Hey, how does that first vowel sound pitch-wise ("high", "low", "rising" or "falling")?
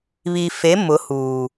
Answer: low